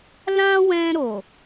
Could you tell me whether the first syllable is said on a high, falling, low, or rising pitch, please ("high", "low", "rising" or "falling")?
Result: high